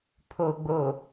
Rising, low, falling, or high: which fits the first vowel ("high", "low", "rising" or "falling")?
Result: low